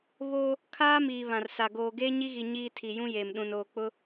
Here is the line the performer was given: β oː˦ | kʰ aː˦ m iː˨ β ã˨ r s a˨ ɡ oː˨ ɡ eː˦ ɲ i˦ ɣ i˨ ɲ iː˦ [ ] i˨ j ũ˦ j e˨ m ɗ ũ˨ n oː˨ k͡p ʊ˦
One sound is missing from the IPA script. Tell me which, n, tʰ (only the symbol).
tʰ